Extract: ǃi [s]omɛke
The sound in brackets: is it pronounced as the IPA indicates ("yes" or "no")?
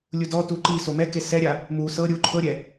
yes